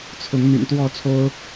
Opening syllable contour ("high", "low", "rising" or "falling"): rising